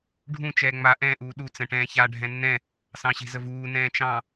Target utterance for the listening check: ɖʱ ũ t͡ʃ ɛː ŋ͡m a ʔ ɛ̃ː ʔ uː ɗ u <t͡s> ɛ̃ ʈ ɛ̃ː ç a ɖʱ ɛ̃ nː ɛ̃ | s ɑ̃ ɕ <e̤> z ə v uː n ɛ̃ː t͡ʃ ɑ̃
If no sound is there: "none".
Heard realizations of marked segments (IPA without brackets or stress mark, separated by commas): t͡s, e̤